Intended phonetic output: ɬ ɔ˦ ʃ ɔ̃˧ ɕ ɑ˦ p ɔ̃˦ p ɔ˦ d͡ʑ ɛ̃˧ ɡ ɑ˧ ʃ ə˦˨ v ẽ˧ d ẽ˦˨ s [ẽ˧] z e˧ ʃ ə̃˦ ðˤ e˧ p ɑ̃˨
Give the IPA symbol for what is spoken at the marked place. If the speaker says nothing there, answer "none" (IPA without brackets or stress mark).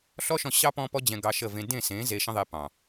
ẽ˨˦